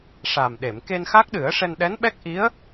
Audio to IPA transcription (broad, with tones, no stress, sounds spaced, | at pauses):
ʂ a˨˩ m ɗ e˨˩˨ m k e˧ n x a˦˥ k̚ ɗ ɨ˨˩˦ ə̯ ʂ ɛ˧ n ɗ ɛ˧˥ n ɓ ɛ˦˥ k̚ ʔ i˧˥ ə̯